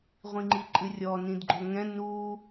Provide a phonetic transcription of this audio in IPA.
ʁʷ ĩ ŋ͡ǃ i ǃʼ ɨ rʲ ɔ n ĩ d ɡ͡ǃ o ŋ ɛ̃ n u

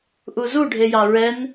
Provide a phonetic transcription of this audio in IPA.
ʔ u z u ɖʱ e j ɑ ɹ ɛ n

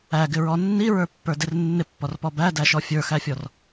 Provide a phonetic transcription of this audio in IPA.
æ ɡ ɪ ɹ ɔ nː i ɹ ə˞ pː ə˞ d ɪ r nː ɪ pː ɔ r p ɔ b æ d æ ʃ ɔ fʲ ə˞ x æ fʲ ɔ r

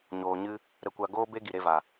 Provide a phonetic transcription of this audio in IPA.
ɲ oː˨ ɲ ɨ˧ | ɾ ə˧ kʷ a˧ ɡ oː˦ b e˦ ɡ i˨ ɾ e˧ v a˨

